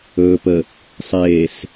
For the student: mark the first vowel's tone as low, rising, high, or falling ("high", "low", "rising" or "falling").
low